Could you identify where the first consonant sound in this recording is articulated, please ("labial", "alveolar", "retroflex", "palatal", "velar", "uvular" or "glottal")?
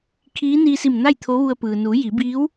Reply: velar